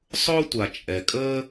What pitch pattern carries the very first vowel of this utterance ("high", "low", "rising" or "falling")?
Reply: high